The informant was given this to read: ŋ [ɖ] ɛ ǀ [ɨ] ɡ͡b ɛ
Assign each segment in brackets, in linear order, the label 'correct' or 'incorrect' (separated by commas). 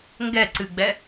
incorrect, correct